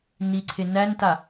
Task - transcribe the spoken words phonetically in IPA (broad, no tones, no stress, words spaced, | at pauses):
niǀʰe nænta